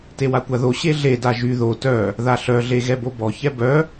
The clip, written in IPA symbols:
t e w a kʷ a ð o ɕ e ɮ e d a ʒ y ð o t œ | ð a ɬ œ ɮ e ɣ ɛ b o b ɔ ç ɛ b œ

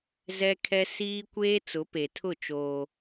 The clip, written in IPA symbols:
z ɛ˦ kʰ ɛ˦ s iː˦ kʷ eː˦ t͡s ʊ˨˦ p e˨ tʰ ʊ˦˨ t͡ʃ oː˦

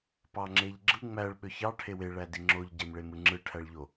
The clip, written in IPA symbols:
p ɑ ŋ͡ǁ e ʎ ɡ͡ǁ ɯ ŋ͡m æ ɭ ɓ ø ç ɑ ʈʰ e w e ɭ æ d i ŋ͡ǁ o ʎ ɟ e m ɭ e m ɯ ŋ͡ǁ ɯ ʈʰ æ ɭ ʎ o

